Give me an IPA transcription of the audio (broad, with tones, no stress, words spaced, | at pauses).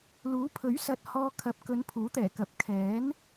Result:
luː˨˥pʰɵ˨˥ɥsɐ˨t̚ hɔː˧ kʰɐ˨˥p̚kɵ˨˧n pʰuː˨˥t̪ɛː˨˩kɐ˨˥p̚ kʰɛː˨˥n